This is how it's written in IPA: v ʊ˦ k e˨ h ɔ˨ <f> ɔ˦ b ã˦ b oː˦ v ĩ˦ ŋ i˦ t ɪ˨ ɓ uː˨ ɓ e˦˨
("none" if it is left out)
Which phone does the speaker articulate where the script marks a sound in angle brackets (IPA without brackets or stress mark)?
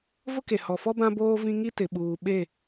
f